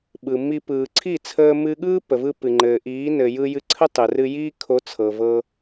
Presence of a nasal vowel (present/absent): absent